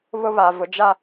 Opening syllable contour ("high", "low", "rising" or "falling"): high